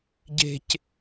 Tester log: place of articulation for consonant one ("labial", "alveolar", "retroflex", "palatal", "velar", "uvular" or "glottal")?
palatal